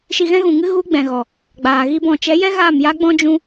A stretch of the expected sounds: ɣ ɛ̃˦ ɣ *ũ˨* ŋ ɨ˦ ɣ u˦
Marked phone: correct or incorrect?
correct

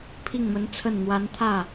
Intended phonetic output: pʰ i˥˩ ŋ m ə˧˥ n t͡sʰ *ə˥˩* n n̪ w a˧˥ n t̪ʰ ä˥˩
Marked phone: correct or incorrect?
correct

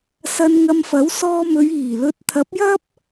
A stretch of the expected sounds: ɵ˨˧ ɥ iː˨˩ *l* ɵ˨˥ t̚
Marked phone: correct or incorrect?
correct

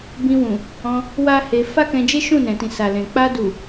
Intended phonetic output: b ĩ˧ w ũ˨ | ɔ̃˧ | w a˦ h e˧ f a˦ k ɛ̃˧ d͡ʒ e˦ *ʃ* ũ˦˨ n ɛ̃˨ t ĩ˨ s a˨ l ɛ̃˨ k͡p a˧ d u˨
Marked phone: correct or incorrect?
correct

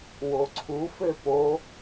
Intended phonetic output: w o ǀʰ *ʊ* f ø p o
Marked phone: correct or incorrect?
incorrect: u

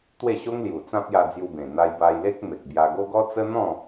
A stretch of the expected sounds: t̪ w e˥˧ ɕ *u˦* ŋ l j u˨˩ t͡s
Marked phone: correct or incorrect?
incorrect: o˦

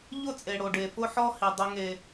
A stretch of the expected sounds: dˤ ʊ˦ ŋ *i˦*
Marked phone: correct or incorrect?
incorrect: e˦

